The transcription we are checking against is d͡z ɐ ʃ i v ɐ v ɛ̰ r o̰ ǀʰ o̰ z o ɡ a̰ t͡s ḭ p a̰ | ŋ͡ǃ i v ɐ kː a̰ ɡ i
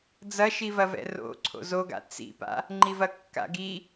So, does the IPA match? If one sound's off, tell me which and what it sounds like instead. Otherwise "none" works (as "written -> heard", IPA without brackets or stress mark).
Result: none